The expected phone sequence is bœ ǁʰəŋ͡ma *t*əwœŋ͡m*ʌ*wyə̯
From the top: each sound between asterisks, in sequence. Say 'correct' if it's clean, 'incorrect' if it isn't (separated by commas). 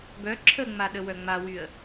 incorrect, incorrect